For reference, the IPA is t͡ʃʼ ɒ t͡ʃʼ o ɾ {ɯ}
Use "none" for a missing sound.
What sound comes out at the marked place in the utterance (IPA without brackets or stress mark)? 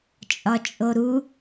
u